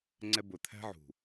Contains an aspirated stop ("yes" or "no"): yes